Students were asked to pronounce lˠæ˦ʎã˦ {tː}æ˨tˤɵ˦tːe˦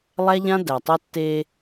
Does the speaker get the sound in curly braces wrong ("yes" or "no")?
yes